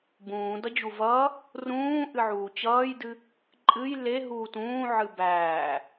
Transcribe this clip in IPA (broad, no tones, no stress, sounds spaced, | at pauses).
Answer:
b ũː d ʌ d͡ʑ u v ʌː | r ũː ʔ ɨ ʕ uː t͡ɕ ʌː j d ɨ | ǃʼ ɨ j l e ɦ uː t ũː ʕ ɨ b æː